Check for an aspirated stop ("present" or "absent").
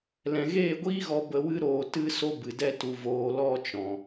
absent